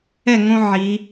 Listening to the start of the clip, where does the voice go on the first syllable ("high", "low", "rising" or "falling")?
falling